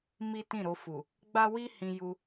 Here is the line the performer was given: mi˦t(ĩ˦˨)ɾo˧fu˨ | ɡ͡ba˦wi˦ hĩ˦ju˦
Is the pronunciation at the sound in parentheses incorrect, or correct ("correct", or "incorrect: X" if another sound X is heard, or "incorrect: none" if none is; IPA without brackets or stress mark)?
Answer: correct